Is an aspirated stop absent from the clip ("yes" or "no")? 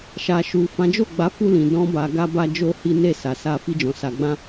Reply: yes